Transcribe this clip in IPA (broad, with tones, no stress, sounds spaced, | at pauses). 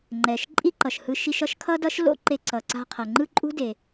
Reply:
ŋ͡ǃ ɛ˩ ʃ ǃʼ i˥ ǃ ʌ˩ ʃ h ɯ˧ ʃ i˧ ʃ ʌ˥ ʃ kʰ ʌ˥ d ʌ˥ ʃ l o̰˥ ǃ e˧ ǀ ʌ˩ ǀ a̤˧ qʰ ʌ˩ ŋ͡ǃ ɯ˥ ǃʼ ṳ˥ d e˩